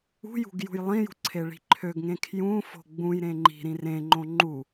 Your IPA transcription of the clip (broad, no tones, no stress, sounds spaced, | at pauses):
ṳ j ṳ ɡ j ṳ j lˠ ĩ j ṳ ǀʰ e ɭ i̤ ǃʰ ø ɡ ŋ ẽ kʰ j ũ f o̤ ɡ͡b ũ j ɾ ẽ ŋ͡ǃ i̤ ɾ ĩ r ẽ ŋ͡ǃ õ ŋ͡ǃ u